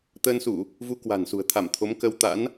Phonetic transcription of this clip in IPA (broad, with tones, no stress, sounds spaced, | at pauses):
t̪ əː˧ n s u˧˩˨ | v u˧ k w a̤˨˩ n s ṳ˨˩ ə̯ t̪ʰ a˧˩ m t̪ʰ o˨˦ m k ə˧ w t̪ a̰˧˥ n